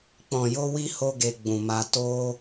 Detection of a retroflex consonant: absent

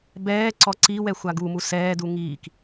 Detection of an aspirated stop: absent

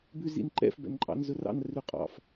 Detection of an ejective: present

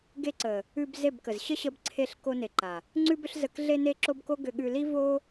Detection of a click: present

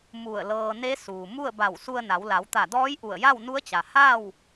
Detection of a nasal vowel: absent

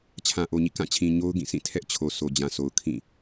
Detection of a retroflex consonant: absent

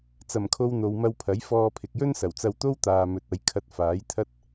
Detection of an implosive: absent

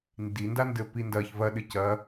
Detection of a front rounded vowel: absent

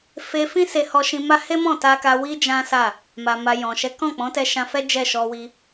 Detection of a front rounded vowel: absent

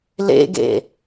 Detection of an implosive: absent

